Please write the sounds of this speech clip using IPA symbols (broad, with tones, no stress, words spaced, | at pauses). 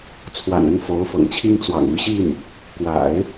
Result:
t͡sʰwa̰˨˩nə˥˩n fo˧˥ʊ̯fɤ̰˨˩ŋt͡ɕʰi˥ŋ t͡swɑ̰˨˩ŋy˥˧ ɕi˥˩n | kwa̰˨˩˦ɪ̯